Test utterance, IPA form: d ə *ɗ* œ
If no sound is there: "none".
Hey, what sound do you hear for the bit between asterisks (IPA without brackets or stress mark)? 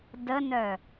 n